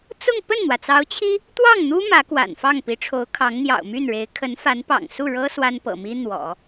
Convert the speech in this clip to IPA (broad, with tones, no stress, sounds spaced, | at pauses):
t͡s ʊ˥˧ ŋ p ə˥˩ n n̪ w ä˩ t͡s ɑ˧˥ ʊ̯ t͡ɕʰ i˥ | t̪ w ɑ˥˩ ŋ n̪ u˥ m ä˧˥ k w a̰˨˩ n f ɑ˥˩ ŋ p i˧˥ ʈ͡ʂʰ o˧˥ ʊ̯ kʰ ɑ˧˥ ŋ n̪ j ɑ̰˨˩ ʊ̯ m y˥˩ n ɻ e˧˥ ɪ̯ kʰ ə˧˥ n f a˧˥ n p ɑ̰˨˩ ŋ s u˥˩ ɻ ɤ˥ s w a˥ n p ɤ̰˨˩ m i˥ n̪ w ɔ̰˨˩˦